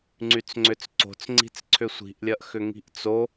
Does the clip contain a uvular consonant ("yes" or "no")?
no